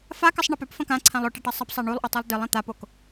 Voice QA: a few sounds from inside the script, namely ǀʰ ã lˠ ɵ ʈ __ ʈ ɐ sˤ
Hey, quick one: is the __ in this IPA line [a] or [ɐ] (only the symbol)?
ɐ